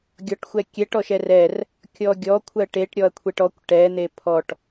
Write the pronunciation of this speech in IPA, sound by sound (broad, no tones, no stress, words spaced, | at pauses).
ɡʲɔʈxʷɛkʲɛʈ ɔʃɛrɛr | kʲɔɡʲɔ kʷʰɜʈeʈ ɾʲɔɐ̯kʷʰeʈɔkʷ ʈɛ n̪epʰɔʈ